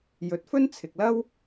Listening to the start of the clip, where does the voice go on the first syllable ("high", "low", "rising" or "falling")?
rising